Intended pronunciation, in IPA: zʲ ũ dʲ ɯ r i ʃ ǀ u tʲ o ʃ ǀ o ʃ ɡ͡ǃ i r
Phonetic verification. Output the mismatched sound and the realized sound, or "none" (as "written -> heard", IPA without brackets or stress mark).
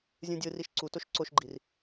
tʲ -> t